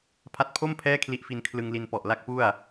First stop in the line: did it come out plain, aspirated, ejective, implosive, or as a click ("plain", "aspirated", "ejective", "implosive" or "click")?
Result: aspirated